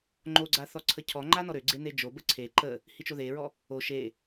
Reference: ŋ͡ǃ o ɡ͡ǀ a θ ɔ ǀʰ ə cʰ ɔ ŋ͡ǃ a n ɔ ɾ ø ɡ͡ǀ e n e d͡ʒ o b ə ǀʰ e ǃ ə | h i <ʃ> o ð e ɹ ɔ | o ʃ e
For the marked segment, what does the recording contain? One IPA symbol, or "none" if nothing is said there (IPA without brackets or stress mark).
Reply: t͡ʃ